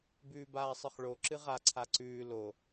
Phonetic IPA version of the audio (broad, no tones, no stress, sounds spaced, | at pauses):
b ʉː b aː sˤ ɨ χ ɭ o ǁ ɨ ʁ a ǀʰ a ǀ ʉː l o